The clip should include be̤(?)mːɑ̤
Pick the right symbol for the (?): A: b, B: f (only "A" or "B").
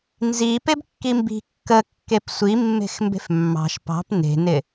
B